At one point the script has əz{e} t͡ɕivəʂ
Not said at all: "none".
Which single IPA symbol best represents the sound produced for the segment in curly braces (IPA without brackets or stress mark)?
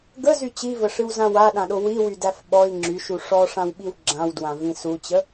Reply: y